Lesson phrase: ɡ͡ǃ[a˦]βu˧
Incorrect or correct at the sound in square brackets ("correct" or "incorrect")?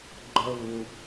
incorrect